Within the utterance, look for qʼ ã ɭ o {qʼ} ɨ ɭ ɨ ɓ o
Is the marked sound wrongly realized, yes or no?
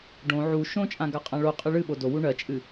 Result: no